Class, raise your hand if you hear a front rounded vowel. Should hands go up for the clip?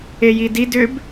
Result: yes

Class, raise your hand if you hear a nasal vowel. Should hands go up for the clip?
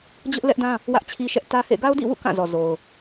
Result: yes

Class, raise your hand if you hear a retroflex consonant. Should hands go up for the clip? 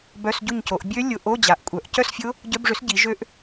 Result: yes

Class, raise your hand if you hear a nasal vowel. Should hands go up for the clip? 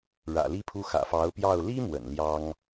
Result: no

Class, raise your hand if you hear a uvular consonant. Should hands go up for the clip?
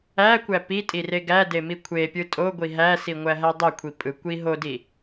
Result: no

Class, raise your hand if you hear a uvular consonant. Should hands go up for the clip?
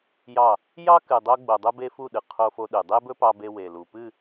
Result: yes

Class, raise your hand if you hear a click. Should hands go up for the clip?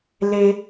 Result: no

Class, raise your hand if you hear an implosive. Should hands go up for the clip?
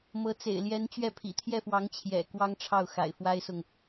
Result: no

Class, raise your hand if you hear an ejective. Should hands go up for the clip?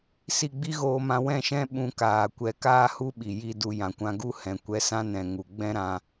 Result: no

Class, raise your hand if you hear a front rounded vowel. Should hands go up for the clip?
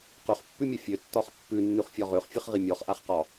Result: yes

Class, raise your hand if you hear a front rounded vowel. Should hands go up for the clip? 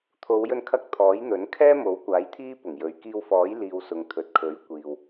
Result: no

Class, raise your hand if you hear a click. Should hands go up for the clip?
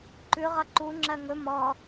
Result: yes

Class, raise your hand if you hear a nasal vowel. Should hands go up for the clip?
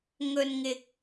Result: no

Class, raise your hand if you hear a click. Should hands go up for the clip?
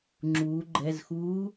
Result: yes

